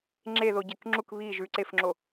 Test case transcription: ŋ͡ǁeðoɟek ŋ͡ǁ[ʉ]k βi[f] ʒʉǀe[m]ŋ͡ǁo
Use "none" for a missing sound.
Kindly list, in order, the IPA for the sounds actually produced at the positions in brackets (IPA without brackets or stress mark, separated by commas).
u, none, f